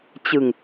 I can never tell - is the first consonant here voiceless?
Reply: yes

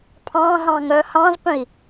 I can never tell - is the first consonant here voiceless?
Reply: yes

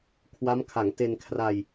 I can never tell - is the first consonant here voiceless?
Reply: yes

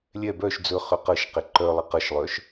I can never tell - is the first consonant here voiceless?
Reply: no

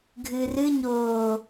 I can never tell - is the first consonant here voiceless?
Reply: no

